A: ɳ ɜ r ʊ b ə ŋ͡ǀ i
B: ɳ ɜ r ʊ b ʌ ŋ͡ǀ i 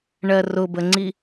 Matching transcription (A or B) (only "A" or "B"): A